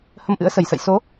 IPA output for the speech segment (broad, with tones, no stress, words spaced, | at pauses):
hə˧mʔɨ̰˧˥ə̯sə˨˩jsə̰˧˨j so˨˦